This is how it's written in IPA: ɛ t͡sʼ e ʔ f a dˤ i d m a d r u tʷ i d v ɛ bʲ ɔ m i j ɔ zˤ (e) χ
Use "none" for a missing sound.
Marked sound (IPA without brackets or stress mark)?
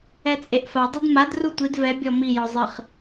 ɨ